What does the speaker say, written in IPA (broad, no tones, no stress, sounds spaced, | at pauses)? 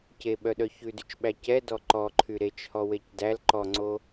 c e ɓ œ ɗ œ ç ʉ d y t͡ʃ ɓ æ c ɛ d ɔ ǃ ɔ ǃʰ y ɾ e t͡ʃ h ɔ w e c d æ l ǃ ɔ ŋ͡ǀ o